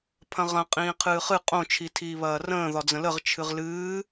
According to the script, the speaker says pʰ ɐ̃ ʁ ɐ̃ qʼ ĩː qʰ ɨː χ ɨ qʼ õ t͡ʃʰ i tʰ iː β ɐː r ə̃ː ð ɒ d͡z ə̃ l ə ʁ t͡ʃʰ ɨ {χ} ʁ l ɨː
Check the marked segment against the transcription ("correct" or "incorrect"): incorrect